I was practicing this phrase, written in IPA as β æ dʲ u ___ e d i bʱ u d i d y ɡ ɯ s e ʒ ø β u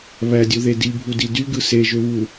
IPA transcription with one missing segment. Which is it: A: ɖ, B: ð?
B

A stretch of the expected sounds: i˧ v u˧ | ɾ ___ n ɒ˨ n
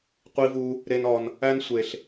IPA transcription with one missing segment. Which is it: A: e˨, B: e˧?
A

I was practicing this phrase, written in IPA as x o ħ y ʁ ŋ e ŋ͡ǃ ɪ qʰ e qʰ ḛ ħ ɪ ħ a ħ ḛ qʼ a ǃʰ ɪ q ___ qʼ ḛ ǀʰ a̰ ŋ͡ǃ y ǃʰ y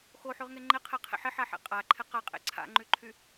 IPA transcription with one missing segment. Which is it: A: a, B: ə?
A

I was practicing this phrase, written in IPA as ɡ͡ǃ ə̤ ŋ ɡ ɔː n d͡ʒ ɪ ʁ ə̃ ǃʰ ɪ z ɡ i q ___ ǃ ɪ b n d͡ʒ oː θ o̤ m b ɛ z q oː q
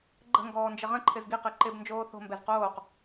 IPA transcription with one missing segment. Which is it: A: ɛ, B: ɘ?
B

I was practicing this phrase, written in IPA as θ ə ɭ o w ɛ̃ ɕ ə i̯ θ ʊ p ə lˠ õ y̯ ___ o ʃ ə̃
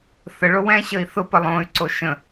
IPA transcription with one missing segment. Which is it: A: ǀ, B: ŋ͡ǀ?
A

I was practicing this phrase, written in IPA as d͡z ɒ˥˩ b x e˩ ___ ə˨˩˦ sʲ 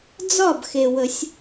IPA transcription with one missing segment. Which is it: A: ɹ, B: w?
B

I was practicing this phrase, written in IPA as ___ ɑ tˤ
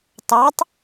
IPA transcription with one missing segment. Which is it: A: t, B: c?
A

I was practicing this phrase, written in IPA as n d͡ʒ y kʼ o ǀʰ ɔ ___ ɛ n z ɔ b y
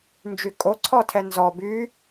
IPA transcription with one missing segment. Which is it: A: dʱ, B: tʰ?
B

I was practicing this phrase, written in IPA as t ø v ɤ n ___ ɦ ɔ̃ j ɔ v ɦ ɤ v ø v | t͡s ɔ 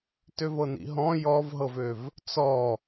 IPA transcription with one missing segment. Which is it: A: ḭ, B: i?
A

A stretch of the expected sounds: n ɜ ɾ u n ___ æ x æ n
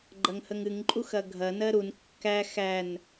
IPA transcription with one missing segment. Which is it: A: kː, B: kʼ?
A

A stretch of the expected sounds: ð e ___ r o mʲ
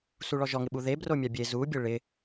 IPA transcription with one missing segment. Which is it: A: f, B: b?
B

